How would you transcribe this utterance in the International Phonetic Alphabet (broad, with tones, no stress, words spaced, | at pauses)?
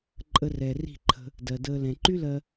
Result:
ǃʼə˧rɛ˨ ri̤˦˨ǃʰə̤˧ | dɜ˨dəː˧ lɛ̃˨ǃy˦lɜ˧